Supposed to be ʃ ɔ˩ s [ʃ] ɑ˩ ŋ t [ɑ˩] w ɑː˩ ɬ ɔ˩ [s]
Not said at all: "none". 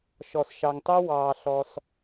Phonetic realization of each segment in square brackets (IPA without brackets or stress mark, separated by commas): ʃ, ɑ˥, s